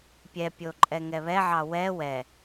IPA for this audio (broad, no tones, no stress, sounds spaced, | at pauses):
pʲ ɛ pʲ o ǃʼ ɛ ŋ ɛ β ɛ ʕ ɑ w ɛ w ɛ